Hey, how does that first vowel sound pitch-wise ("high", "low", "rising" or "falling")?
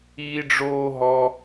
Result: high